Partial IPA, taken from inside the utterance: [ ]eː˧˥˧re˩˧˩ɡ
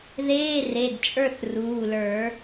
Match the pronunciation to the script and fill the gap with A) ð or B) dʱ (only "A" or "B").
A